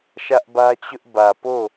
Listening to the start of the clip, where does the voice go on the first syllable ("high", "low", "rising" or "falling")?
high